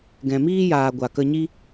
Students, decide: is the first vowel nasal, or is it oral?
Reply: nasal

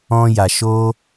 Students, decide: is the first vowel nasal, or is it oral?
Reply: nasal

